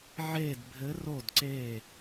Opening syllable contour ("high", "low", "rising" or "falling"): falling